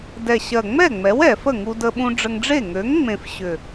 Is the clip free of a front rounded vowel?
no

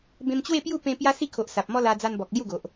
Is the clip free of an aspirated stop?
no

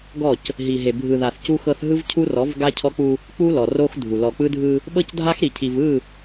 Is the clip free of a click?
yes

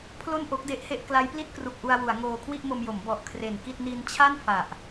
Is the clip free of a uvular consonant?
yes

